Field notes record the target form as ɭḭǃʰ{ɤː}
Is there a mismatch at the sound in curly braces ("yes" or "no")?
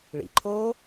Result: yes